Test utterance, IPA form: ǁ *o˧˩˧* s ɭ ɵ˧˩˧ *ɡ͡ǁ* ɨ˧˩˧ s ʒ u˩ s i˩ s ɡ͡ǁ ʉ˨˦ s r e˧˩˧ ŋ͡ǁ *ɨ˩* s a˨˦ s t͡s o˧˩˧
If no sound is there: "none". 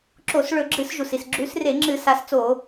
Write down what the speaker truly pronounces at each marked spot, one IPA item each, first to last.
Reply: o˧˩˧, ɡ͡ǁ, ɨ˧˩˧

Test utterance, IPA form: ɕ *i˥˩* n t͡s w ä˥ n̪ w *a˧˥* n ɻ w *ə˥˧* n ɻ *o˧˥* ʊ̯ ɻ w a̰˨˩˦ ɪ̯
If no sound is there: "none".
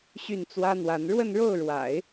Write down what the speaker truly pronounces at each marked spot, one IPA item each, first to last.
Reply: y˥˩, a˧˥, ə˥˧, o˥˩

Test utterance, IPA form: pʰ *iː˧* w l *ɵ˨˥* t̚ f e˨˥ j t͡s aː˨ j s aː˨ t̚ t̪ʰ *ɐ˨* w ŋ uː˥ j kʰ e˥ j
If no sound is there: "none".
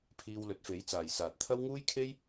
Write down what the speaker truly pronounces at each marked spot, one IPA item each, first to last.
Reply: iː˧, ɵ˨˥, ɐ˥

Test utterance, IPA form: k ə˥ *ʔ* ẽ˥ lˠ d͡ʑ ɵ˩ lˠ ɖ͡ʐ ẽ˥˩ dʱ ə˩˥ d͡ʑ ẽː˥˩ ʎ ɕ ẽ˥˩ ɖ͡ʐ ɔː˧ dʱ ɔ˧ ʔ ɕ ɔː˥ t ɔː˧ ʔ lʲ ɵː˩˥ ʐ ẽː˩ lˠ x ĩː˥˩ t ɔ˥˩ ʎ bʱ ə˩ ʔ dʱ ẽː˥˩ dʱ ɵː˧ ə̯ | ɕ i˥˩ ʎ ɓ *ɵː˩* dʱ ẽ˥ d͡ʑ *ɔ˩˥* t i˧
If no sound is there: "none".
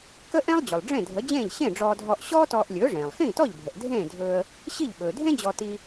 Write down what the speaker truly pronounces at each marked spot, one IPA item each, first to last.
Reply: ʔ, ɵː˩, ɔ˧

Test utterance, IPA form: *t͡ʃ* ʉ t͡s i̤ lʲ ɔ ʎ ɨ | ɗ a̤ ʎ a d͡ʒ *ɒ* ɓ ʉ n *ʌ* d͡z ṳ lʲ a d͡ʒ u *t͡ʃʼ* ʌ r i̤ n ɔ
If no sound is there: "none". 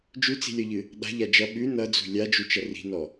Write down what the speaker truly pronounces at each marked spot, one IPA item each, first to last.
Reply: d͡ʒ, ʌ, ʌ, t͡ʃ

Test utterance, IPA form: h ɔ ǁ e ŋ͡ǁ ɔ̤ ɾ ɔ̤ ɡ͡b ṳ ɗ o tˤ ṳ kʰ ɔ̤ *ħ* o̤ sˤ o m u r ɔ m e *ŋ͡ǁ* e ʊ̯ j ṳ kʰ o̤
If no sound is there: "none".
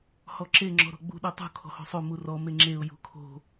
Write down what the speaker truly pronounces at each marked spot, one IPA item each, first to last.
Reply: h, ŋ͡ǁ

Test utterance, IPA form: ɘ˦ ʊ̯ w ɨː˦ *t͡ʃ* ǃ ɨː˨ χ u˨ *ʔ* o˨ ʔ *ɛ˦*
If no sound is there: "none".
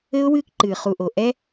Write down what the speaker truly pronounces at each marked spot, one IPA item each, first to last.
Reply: k, ʔ, ɛ˦

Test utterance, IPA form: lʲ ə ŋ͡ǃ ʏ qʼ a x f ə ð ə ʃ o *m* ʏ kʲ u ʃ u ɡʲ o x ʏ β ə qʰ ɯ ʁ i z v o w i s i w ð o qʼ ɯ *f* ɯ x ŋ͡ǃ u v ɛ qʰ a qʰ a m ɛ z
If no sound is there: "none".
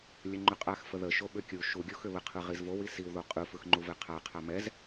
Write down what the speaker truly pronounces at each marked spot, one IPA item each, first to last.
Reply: ɓ, f

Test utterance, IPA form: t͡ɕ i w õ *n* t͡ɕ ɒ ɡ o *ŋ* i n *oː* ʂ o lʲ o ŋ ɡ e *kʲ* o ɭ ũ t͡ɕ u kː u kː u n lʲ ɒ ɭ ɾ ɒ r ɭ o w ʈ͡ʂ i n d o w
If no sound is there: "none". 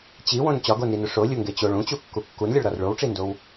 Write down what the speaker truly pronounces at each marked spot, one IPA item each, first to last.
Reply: n, n, o, t͡ɕ

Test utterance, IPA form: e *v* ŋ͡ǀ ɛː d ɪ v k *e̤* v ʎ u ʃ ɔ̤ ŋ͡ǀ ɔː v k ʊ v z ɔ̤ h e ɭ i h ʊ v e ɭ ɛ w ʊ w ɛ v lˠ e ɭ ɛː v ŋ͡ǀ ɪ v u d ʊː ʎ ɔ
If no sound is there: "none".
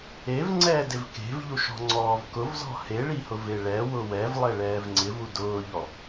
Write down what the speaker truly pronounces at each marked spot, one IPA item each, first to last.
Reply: v, e̤

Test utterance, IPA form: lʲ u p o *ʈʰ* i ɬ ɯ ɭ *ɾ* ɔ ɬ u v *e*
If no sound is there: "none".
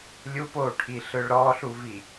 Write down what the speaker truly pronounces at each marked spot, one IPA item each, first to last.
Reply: ʈʰ, ɾ, i

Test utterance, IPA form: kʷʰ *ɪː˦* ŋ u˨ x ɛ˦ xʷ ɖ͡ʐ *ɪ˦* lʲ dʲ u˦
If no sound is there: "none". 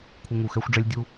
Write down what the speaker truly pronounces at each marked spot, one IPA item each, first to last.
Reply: ɪ˦, ɛ˦

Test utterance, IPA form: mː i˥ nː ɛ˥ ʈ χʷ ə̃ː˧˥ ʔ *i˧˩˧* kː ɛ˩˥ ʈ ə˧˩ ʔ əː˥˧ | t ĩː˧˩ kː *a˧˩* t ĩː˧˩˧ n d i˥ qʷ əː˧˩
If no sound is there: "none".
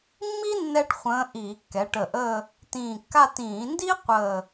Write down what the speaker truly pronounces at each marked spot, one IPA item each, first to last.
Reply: iː˧˩˧, a˥˧

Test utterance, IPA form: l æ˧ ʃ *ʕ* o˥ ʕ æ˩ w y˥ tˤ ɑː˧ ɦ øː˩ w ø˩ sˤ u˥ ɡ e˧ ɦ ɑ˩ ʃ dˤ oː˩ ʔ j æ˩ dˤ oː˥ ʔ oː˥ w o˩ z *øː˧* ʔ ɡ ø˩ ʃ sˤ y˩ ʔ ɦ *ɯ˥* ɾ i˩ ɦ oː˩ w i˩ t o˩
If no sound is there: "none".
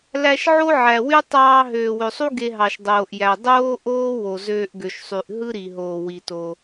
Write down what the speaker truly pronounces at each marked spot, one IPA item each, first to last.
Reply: ʕ, øː˧, ɯ˥

